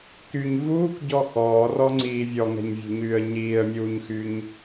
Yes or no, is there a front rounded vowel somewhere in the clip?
yes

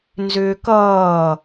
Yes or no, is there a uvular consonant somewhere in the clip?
no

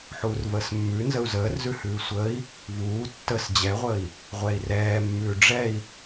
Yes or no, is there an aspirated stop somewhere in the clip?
no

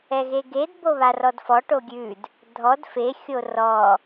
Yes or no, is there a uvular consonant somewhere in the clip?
no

